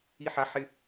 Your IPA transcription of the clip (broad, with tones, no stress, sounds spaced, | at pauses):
i˧ ħ a˨˦ ħ ɪ˧